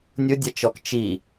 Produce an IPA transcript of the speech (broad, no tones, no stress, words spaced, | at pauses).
nʲʊdʲat͡ʃɔk t͡ʃi